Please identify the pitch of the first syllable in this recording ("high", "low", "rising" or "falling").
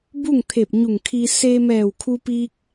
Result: falling